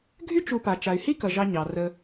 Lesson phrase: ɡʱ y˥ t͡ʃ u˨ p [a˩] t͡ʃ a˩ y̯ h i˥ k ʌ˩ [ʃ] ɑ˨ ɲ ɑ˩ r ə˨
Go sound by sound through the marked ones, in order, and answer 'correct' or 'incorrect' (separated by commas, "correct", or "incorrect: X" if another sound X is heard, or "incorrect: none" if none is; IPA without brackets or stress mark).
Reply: correct, incorrect: ʒ